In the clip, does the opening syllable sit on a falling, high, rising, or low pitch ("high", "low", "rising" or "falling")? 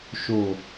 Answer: low